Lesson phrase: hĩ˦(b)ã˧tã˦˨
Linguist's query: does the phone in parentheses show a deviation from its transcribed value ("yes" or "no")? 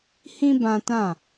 no